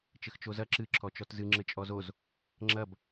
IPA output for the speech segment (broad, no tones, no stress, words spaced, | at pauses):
t͡ʃɘxt͡ʃozɐ ǁɨ ǁʰɔt͡ʃɔtzɨ ŋ͡ǁɘt͡ʃʼɔzoz | ŋ͡ǁɐb